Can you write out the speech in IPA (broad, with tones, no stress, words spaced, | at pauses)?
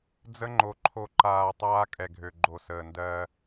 d͡zə˦ŋ͡ǃo˨ ǃʰo˨ǃaː˨ tˤaː˦kʼɛ˨ɡʱø˨ ɡ͡ǃo˨səː˨ndɜ˦